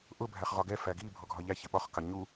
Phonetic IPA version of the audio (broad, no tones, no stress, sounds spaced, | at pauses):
ʔ ʊ bʱ æ χ ʁ ɒ ɡ ɛ f æ ɡ i bʱ ɔ ɡʱ ɒ ʎ æ ç ɪ ɓ ɒ χ k ɑ ɲ u